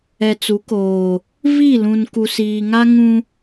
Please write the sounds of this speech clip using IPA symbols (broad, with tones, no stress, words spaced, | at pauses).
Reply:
ɛ˨t͡su˨˦koː˨ | vi˦˨lũ˨n ku˨siː˨ŋa˦ ŋũ˦